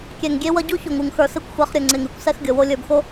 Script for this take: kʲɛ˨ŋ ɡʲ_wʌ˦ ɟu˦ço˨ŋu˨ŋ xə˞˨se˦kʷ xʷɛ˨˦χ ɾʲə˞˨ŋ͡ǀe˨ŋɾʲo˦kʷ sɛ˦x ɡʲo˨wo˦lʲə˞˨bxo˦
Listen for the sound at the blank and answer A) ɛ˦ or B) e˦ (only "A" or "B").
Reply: B